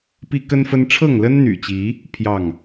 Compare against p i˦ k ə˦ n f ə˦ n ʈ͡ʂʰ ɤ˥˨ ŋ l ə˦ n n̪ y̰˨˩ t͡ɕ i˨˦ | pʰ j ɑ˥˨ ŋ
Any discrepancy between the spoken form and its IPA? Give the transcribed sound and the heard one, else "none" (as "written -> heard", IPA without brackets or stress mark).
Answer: none